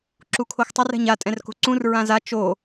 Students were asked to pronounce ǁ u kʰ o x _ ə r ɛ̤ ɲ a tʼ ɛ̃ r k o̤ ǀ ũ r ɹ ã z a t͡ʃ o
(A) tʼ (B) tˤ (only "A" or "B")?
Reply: B